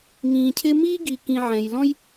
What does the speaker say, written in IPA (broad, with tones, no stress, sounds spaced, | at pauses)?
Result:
ŋ ĩː˨ cʰ ɪ˦ m iː˥ ɡ i˨ k ĩ˨ ʕ ɛ̃˨ j l ɔ̃˥ j